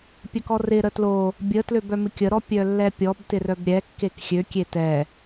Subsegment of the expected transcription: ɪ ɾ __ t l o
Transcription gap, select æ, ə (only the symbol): ə